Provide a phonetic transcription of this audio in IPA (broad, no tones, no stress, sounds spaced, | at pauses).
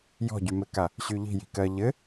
j ɔ̤ ɟ y m ɘ k a | ɕ y ʎ i̤ j i̤ k ɜ ʎ ɘ